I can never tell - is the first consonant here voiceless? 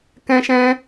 yes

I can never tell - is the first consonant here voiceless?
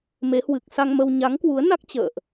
no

